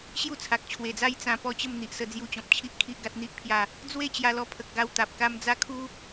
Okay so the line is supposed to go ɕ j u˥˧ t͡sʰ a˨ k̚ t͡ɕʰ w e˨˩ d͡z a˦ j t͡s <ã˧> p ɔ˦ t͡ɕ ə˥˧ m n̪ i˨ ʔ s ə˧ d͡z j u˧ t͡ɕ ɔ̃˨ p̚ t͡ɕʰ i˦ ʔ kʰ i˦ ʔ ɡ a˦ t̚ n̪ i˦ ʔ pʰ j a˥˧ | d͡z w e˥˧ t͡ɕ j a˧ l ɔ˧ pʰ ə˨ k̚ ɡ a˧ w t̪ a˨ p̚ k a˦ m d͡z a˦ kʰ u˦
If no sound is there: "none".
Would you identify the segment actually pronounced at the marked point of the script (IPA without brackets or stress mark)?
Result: ã˧